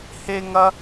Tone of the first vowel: high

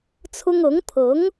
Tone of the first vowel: high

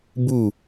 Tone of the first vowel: falling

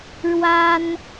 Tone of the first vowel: high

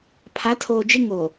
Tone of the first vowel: rising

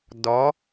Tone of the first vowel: rising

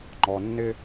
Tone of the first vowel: low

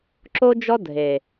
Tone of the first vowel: high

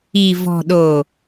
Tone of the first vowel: low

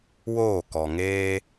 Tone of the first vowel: falling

